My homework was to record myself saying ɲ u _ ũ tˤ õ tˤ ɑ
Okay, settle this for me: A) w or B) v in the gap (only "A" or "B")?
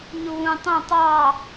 A